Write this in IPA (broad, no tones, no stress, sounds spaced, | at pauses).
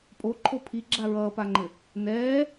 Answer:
pʼ o ǃʰ o pʰ i ɡ͡ǁ a ɹ ʌː p a ŋ͡ǃ ɘ | n ɛː